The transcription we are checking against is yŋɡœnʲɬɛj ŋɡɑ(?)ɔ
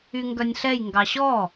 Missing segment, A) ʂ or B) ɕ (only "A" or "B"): B